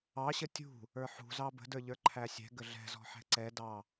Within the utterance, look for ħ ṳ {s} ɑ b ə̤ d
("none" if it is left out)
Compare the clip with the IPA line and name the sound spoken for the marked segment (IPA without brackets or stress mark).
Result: z